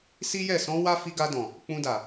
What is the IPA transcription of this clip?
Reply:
si˦jɛ˦˨ sɔ̃˧ wa˦ fi˧ɡa˧ dɔ̃˨ | k͡pũ˧da˨

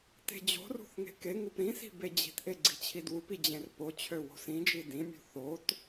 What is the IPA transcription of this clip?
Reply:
te̤d͡ʑo̤rṳθ ŋe̤keŋup ɾĩsi̤ bed͡ʑi̤tʔe ɡ͡ǀi̤t͡ɕʰidwupi d͡ʑẽrpot͡ɕʰø wo̤sĩd͡ʒi dĩmʲṳ θot

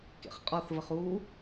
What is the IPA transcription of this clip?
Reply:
kḛχqʼɒθvəχ u

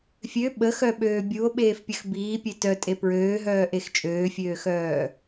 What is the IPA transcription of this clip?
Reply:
fʲø ɓəxœɓøː bʲuo̯ɓeːfpʲəx biːpʲe tœtʼe pɹøːɦœːʔex t͡ʃʼøːfʲøːxœː

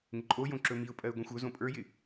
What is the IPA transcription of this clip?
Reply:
ŋɪǃʼojõ ǁɵmiʊ̯pʼɜɪ̯ ɡʷɛ̃xʷɵzõ pʼə˞jɪ

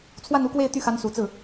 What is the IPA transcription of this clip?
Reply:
t͡sʰwa˥˧nu˥˧kwe˥˧ɪ̯ t̪y˥˩xa˧˥nsu˨˩t͡sɹ̩˥˩

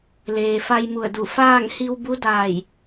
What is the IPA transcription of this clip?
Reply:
leː˩fa˧jmu˧˩ə̯du˧˩ faː˥˨ŋhi˧w bu˧˥daː˧˩j

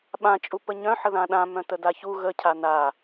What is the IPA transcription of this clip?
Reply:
ɓã t͡ʃʼupəɲœ̃ ħəðãɗã mœ̃tədaçu ɣə cʰana

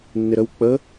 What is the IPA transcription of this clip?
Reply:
nːɪɾəw k͡pə

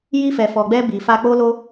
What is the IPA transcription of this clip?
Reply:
ji˧fɛ˨fɔ˨ɡ͡bɛ˧ bi˨fa˧k͡po˦lo˦

